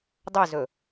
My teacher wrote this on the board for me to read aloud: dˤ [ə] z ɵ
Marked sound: incorrect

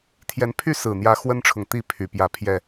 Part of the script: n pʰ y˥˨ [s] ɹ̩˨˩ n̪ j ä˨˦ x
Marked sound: correct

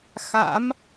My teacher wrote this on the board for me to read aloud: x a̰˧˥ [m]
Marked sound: correct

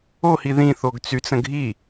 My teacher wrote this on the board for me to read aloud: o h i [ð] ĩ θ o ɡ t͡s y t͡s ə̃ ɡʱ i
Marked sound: correct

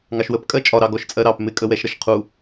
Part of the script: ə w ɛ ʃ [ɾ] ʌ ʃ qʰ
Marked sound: correct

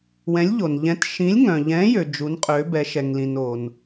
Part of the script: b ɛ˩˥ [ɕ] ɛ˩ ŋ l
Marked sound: incorrect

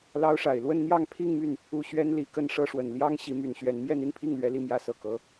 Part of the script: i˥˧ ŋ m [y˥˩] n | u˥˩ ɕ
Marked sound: correct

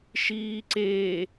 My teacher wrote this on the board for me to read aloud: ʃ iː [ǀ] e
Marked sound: correct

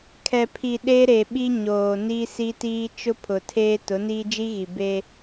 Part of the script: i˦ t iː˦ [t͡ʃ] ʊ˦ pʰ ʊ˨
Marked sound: correct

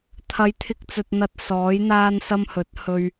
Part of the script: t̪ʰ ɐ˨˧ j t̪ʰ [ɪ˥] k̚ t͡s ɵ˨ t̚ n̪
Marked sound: incorrect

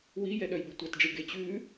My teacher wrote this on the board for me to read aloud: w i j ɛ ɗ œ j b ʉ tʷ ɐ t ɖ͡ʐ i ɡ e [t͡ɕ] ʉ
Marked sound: correct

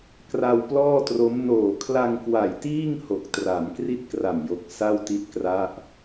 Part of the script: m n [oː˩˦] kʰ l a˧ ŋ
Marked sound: incorrect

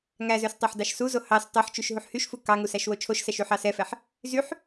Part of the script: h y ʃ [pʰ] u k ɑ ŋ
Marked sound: incorrect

